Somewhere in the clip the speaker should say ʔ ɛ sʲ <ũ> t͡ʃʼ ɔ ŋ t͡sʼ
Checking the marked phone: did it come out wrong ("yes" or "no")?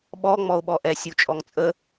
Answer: yes